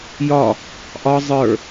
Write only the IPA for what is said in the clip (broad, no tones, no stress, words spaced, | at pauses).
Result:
jɒ | ʔɒ zˤə˞